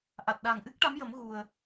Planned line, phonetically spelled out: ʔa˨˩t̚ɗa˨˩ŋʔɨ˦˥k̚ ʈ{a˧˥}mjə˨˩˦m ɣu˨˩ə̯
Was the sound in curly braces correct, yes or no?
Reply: yes